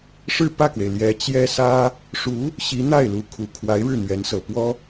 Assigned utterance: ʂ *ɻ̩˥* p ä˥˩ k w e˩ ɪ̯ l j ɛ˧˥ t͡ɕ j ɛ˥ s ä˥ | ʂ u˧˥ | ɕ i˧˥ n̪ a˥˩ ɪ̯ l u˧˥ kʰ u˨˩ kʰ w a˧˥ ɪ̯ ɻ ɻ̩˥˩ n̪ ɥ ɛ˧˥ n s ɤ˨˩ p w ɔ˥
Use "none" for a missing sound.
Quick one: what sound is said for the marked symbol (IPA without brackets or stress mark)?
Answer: ɻ̩˥˧